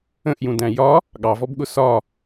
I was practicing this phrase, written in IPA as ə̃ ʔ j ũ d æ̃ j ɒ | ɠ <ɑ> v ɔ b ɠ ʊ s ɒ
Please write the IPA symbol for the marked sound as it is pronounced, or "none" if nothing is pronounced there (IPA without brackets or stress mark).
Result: ɑ